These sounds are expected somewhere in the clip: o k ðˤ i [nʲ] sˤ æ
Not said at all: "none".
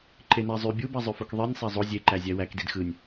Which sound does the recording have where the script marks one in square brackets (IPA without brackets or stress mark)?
nʲ